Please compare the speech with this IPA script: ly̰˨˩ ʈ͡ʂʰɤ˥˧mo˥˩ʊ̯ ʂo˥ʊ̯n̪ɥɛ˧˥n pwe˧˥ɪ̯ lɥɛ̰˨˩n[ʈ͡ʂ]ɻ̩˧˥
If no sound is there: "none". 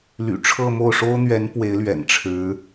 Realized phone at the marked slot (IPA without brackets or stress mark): ʈ͡ʂʰ